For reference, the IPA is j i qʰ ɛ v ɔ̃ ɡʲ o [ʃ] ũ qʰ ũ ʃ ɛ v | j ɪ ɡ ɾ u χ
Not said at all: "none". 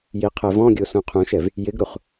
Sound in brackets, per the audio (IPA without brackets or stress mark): s